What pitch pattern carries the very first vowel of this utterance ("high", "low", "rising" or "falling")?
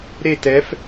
falling